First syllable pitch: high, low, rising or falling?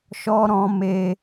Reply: high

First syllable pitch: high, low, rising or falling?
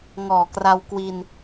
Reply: low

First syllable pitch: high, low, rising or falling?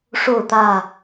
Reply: falling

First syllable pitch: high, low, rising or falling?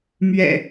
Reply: low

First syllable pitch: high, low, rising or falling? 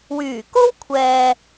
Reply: low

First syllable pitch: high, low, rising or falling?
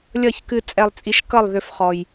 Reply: falling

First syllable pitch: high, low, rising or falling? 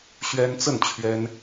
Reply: high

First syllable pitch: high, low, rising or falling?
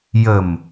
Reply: low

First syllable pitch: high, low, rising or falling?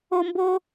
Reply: high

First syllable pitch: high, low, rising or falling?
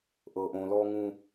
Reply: low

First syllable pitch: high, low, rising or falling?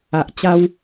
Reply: low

